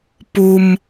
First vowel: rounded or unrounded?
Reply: rounded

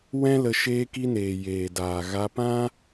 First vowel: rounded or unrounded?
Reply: unrounded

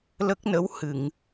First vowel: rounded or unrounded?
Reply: unrounded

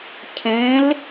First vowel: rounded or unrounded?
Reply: unrounded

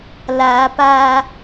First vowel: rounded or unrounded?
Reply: unrounded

